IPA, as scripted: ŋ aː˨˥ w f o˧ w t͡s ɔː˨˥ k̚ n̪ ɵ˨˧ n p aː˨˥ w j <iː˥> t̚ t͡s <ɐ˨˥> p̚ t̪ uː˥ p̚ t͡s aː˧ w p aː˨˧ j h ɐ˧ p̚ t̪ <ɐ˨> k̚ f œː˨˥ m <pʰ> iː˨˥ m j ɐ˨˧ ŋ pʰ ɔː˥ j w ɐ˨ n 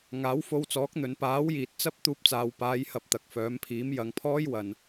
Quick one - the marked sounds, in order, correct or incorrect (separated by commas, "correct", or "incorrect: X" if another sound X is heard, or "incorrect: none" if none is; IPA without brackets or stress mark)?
incorrect: iː˨, incorrect: ɐ˥, correct, correct